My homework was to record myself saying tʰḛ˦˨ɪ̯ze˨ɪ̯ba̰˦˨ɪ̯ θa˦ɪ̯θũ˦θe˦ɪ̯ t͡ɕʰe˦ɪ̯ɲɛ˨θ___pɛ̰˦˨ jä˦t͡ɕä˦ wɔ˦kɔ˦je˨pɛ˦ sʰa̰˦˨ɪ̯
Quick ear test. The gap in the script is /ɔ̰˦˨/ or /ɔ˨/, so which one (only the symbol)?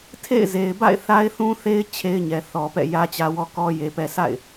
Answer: ɔ˨